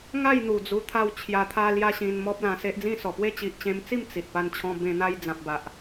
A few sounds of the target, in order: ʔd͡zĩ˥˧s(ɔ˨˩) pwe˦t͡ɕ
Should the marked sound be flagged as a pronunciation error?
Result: no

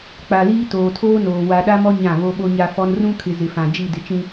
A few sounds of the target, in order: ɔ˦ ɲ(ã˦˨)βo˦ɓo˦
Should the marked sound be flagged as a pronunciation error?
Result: no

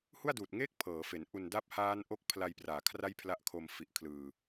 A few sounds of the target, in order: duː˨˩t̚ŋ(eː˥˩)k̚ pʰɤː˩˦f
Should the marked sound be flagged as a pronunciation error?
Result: no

